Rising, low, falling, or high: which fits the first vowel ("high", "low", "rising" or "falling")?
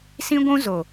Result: high